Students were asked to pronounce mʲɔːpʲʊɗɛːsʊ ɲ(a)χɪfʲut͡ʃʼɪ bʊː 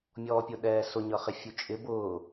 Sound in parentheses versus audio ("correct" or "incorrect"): incorrect